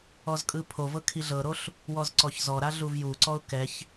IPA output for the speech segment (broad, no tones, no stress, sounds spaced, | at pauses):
ɔ z kʼ ɯ pʰ o v ɤ kʰ i ɮ ɤ ɾ o ɬ | w ɔ z ǀ ɔ ç z ɔ ɾ a ɮ u v j u ǀ ɔ ʊ̯ k ɛ ç